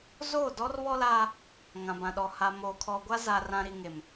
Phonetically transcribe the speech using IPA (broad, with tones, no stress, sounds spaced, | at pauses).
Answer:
z oː˦˨ d ɔ˦ r β ɔ˦ l aː˦ | ŋ ã˨ b ã˨ ɗ ɔ˨ h a˨ m oː˨ kʰ ɔ˨ ɡʷ a˦ z a˨ r ã˨ ɾ i˨ ŋ e˨ m